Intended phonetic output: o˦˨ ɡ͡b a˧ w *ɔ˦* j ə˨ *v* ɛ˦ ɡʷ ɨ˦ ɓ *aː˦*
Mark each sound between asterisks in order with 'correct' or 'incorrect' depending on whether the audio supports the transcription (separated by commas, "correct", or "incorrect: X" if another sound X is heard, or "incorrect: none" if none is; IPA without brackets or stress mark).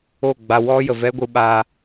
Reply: correct, correct, correct